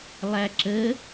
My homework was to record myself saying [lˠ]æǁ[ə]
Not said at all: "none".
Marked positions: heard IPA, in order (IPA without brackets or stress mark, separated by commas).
lˠ, ə